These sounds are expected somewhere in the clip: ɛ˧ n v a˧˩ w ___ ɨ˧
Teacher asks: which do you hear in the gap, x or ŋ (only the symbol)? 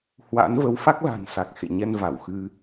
x